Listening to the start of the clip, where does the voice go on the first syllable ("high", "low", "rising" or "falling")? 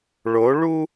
rising